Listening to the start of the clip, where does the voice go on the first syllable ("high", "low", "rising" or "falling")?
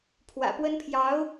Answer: low